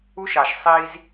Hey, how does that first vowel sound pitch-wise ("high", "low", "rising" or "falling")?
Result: high